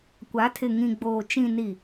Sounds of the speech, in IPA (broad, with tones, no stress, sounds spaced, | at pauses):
kʷ a˨˦ tʰ ɪ˨ ŋ ĩ˨ ɡ͡b oː˨ t͡ʃ ĩ˨ n i˨